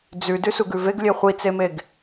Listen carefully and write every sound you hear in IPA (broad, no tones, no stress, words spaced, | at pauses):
d͡zʉ dʉsuɡʉveɡ lʲeχʷit͡semeɡ